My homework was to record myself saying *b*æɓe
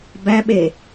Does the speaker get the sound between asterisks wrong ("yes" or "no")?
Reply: no